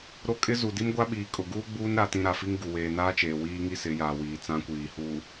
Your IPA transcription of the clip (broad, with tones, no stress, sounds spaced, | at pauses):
ɾ o˦ kʼ ɪ˦ z u˨ d i˦ m ɡʷ a˦ ɓ iː˨ kʼ ʊ˨ ɡ uː˦ ɡ͡b uː˦ n ɾ a˦ t ĩ˦ ɾ a˨ f i˦ ŋ ɡ u˨ w eː˨ n aː˦ t͡ʃ eː˨ w iː˦ ŋ i˦ s ɪ˨˦ j aː˨ w iː˨ t͡s ã˦ kʷ iː˨ h uː˨